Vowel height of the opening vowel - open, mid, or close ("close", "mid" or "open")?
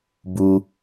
close